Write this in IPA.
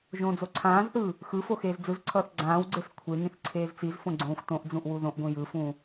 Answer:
ʒ õː d͡z o ǀʰ ãː z θ ɯː | x ɯ f o x eː z d͡z ɯ z ǀʰ ʌː θ ɡ͡ǀ ãː w ɡ͡ǀ e s kʷʰ e ŋ ĩ θ ǀʰ eː z t͡s i z f õ ɡ͡ǀ õː xʷ t õ ʔ d͡z ũ ʔ w u ð õ ʔ ɡʷ ĩ j ɯ f ũː

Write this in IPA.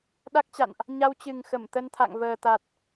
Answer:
ɗ a˦˥ k̚ t͡ɕ a̰˧˨ n ʔ | ɲ a˧ w t͡ɕ ɨ˨˩ ŋ x ə˧˩ m t̪ ə˧ n t̪ʰ a̰˧˨ ŋ v əː˨˩ t̪ a˨˩ t̚

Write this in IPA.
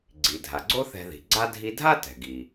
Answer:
ɡ͡ǀ i˩ dʱ a˩ ɡ͡ǀ o˥ θ ɛ̤˧ ð i̤˩ ɡ͡ǀ a˥ dʱ i˧ dʱ a˥ t ɛ̤˩ ɡ i˩

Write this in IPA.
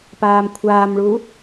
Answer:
p aː m kʷʰ aː m ɭ u

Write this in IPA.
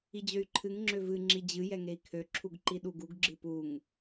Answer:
i d͡ʑ ø y̯ ǃʰ ɨ ŋ ŋ͡ǁ ø v ɨ ŋ͡ǁ i d͡ʑ ɨ j ɛ ŋ e i̯ kʰ ø ǁʰ u ɡ ǃ i ɗ u ɡ u ɡ ɡ͡ǁ ɨ p u ŋ

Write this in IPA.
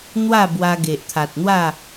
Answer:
n̪ w a˥˧ b w a˧ ɡ e˨ ʔ t̪ʰ a˨ t̚ n̪ w a˥˧

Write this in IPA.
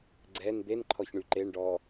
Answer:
ɡ͡ǀ ɛ n d̪ e n ǃʰ ɔ ç ɳ y ǃ e ɳ ɖ ɔ

